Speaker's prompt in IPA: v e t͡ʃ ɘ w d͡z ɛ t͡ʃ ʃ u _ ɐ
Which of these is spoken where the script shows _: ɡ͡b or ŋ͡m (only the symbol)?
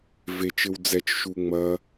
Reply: ŋ͡m